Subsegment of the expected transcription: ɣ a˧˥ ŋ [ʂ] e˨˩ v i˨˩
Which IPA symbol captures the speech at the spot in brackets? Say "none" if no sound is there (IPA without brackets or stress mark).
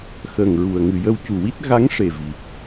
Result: ʂ